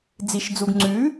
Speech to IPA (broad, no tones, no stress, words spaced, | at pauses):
d͡ziʃd͡zuɡ ŋ͡ǀʉ